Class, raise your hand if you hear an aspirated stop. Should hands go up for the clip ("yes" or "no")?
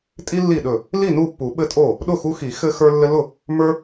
no